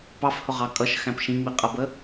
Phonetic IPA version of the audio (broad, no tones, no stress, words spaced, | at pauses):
pɑfhʊʁɑ kʼʌʃxæ̃p ʃĩŋ͡miqʼʌbə